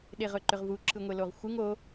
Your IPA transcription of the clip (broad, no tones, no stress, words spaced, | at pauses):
ɗeʁɵǃʏʁvu ǁɯŋʷeloʁxʷɯŋ o